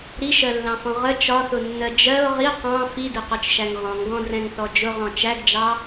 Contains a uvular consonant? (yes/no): yes